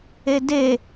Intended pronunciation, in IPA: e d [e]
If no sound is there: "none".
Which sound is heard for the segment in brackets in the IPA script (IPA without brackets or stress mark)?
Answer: e